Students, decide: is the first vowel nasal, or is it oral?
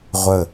oral